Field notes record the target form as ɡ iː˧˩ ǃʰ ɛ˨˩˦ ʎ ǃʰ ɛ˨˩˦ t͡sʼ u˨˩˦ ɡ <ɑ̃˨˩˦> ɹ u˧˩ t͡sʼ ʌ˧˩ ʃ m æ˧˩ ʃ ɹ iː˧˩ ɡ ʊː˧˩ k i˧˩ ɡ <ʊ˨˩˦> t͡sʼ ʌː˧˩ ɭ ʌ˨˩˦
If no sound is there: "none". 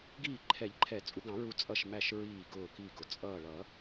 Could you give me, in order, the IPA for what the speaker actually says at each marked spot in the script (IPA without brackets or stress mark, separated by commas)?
ɑ̃˨˩˦, ʊ˨˩˦